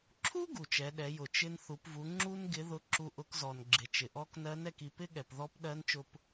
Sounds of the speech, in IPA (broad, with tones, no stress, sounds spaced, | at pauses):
ǁʰ u˥ ɡ u˩ t͡ʃ ɛ˩˧ ɗ ɛ˩˧ j ʊ˩ t͡ʃ ɪ˧ n θ u˩˧ p v u˩˧ ŋ͡ǁ u˥ n ɡ ɪ˧˥ ð ʊ˧˥ ǁ u˧ ʔ ʊ˧˥ k z ɔ˩ n ɡ͡ǁ ɪ˩˧ t͡ʃ ɪ˩ ʔ ɔ˧˥ k n ɜ˧˥ n ɛ˧ k i˧ p ɪ˥ ɠ ɛ˩ p ð ɔ˧˥ p ɗ ɜ˧˥ n t͡ʃ ʊ˧ p